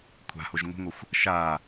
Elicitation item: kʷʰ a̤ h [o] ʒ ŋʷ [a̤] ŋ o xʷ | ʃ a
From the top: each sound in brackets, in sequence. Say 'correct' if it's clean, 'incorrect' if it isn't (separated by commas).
correct, incorrect